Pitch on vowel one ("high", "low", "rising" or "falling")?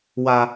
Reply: high